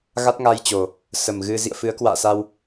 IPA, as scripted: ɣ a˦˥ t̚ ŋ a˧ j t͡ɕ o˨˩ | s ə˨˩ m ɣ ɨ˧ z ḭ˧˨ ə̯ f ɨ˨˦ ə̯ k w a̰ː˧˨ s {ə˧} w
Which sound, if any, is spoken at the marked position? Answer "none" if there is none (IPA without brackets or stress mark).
a˧